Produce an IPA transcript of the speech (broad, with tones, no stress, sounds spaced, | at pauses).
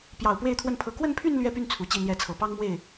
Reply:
p j ɑ˨˩ ʊ̯ p w e˥˧ ɪ̯ t̪ʰ w ə˥˩ n pʰ ɤ˧˥ k w ə˥˧ n pʰ y˥˧ n l ɥ ɛ˥˧ p y˥˩ n t͡sʰ u˧˥ t͡ɕ i˥˧ n̪ j ɛ˥˩ t͡sʰ ɤ˨˩ p ɑ˥ ŋ m w e˥˩ ɪ̯